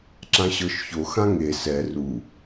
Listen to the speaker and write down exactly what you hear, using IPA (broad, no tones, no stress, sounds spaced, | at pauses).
ǁ ã ɕ ɤ ʃ ç o x ã ŋ e s ɛ r u